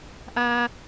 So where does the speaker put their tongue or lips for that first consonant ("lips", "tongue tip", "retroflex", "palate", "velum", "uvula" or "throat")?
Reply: throat